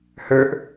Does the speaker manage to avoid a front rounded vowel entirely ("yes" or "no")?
yes